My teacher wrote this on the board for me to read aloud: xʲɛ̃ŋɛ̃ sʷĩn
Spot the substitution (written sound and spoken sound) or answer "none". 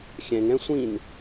none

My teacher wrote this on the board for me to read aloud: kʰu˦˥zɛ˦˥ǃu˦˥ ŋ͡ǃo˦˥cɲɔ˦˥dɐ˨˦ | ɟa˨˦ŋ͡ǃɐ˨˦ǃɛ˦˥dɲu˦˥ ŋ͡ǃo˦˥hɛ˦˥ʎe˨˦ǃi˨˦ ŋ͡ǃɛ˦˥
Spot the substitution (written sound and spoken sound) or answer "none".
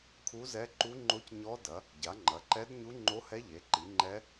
none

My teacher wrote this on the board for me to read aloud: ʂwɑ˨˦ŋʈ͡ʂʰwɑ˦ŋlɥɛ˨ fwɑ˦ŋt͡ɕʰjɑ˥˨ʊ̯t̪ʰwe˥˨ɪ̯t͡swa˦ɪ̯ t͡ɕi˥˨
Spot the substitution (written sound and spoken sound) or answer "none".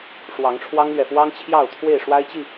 t͡s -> ʂ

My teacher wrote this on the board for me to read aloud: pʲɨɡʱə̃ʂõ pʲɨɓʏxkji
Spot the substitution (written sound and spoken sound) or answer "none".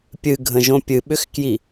ʂ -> ʒ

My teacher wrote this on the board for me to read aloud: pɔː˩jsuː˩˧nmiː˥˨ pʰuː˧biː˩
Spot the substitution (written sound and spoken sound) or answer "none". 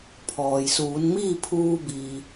p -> pʰ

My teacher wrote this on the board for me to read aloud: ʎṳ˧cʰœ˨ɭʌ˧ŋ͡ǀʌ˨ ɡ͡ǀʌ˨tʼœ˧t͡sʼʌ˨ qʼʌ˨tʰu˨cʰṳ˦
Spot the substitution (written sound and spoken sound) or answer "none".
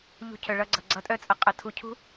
ŋ͡ǀ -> ɡ͡ǀ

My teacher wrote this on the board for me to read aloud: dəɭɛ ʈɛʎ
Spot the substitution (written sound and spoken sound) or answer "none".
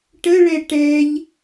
d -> ʈ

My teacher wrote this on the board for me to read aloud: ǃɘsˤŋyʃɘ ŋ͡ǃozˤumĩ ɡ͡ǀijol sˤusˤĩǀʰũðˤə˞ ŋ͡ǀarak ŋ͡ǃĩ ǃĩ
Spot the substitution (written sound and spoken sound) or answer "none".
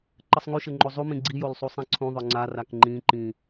none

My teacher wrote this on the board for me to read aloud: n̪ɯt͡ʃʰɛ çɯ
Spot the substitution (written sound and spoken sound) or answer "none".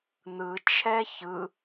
none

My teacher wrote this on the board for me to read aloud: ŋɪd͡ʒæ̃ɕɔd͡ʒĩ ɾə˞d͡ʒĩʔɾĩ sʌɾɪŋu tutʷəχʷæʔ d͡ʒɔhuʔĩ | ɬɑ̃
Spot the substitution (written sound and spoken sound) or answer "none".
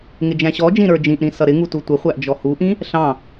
none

